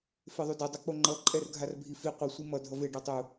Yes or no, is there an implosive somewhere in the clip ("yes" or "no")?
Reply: no